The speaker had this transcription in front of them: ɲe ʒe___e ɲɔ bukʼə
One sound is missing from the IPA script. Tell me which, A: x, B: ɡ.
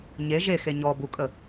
A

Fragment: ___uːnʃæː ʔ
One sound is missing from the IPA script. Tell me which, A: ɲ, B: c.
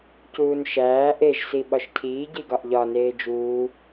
B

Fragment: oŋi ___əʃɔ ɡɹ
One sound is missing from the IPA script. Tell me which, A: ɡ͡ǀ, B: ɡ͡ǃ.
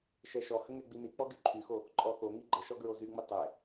B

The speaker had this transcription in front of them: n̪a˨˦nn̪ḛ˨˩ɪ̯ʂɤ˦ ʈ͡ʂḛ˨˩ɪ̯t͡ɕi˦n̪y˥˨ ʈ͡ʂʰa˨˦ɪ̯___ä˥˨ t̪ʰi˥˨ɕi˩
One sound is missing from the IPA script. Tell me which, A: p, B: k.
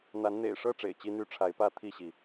A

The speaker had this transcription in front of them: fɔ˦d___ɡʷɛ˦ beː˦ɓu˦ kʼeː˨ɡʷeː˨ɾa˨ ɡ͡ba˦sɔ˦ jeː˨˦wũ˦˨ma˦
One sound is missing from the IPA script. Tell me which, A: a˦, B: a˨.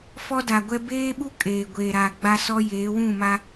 B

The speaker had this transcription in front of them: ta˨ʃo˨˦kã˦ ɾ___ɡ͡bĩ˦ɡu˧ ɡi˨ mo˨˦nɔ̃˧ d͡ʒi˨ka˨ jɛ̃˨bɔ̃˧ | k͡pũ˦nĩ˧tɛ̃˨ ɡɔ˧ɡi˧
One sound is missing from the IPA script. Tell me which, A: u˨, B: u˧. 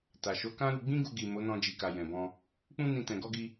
B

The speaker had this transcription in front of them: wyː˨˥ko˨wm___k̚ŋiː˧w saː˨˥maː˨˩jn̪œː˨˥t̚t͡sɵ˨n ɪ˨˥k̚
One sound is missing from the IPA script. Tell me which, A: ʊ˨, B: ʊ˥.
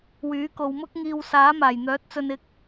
B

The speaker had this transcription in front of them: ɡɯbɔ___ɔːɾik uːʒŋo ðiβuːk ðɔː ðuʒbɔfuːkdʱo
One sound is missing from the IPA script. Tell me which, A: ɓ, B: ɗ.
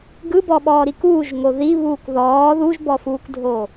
A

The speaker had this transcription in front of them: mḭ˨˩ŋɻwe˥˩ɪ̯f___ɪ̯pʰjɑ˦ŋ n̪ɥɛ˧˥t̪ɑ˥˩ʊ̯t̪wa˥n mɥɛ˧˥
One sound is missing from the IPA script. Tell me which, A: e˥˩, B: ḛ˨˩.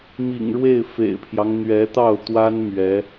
B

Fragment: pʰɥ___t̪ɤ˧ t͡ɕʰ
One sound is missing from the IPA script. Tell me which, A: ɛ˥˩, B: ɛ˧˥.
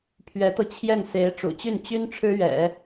B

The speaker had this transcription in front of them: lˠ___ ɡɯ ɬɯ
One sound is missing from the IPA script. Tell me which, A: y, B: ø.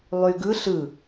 A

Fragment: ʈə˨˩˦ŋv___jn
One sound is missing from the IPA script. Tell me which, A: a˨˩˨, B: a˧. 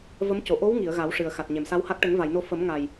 A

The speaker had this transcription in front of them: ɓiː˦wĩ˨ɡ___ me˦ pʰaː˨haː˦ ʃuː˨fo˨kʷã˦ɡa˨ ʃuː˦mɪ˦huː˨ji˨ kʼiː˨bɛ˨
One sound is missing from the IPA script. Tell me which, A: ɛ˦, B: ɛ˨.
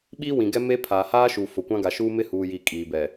A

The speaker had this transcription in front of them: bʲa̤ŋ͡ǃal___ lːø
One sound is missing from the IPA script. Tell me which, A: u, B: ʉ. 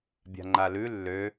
B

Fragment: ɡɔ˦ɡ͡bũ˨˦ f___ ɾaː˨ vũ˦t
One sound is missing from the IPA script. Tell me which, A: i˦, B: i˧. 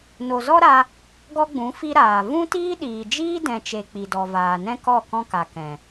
B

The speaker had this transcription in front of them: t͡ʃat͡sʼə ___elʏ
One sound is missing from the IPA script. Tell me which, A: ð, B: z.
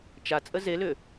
B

